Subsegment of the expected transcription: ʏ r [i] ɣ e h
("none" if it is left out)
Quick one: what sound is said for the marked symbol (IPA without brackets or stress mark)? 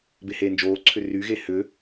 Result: y